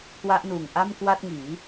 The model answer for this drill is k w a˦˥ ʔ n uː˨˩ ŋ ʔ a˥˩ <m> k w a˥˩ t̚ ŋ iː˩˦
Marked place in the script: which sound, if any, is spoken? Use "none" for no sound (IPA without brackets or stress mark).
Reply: m